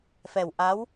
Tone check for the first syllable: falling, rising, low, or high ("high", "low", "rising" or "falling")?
low